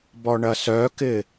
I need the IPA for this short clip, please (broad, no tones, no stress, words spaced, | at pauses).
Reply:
bɔɳɐsœkɪ